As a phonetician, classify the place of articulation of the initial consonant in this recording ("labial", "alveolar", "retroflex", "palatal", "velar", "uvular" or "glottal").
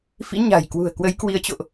labial